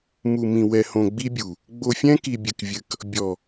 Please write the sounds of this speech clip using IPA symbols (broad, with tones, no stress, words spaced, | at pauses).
mu˨mĩ˨ wɛ˨hõ˨ɡ͡bi˦bʲu˨ | ɡ͡bo˨fʲɛ̃˦ki˨ bʲɘ˨kvʲɘ˨k | bʲɔ˨